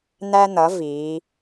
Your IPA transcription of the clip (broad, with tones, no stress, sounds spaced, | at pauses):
n̪ æ˧ n̪ ʌ˩˧ v iː˩˧